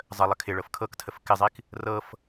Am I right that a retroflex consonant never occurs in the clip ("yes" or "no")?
no